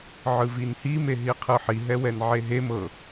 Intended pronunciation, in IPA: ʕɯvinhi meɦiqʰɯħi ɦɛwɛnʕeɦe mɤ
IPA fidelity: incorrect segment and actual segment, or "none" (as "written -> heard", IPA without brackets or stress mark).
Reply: none